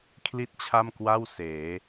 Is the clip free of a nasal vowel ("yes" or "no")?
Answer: yes